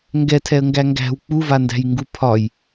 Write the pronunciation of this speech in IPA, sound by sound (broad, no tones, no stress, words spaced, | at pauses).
ŋɡɛtʰɛə̯ŋɡæ ŋɡæ̤w k͡puvandæ̤jŋɡu pʰɒj